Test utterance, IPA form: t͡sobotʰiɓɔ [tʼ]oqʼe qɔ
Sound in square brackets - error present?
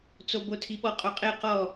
yes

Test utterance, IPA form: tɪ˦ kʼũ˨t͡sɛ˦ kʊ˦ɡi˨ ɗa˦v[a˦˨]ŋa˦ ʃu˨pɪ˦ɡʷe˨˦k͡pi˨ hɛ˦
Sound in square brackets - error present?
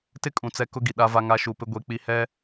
yes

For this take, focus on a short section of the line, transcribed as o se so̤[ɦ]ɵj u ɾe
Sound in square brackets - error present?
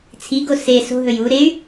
no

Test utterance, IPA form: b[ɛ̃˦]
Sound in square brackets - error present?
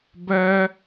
yes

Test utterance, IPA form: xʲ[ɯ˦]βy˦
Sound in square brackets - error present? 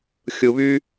yes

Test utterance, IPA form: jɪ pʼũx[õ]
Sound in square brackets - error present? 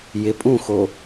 yes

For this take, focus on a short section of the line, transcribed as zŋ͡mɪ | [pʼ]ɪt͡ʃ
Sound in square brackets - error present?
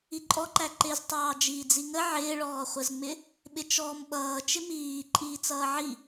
yes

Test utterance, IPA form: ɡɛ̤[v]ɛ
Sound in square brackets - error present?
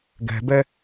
yes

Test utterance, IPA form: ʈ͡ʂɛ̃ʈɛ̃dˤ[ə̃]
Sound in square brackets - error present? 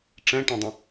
no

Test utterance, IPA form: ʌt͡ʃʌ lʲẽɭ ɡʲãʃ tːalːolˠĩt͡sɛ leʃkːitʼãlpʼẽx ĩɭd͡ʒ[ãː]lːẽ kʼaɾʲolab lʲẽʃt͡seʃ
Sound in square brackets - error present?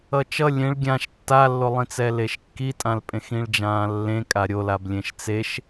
no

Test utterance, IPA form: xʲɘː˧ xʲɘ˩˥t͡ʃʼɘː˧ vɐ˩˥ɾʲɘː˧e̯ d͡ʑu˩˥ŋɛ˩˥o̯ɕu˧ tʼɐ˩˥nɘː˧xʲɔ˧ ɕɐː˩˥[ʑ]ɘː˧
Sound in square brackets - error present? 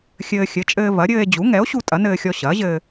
no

